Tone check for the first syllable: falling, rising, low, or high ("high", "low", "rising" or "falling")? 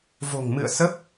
low